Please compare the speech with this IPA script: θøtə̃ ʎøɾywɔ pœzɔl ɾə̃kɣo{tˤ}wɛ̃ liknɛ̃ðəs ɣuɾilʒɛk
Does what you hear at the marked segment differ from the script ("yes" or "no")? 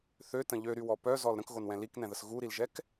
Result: yes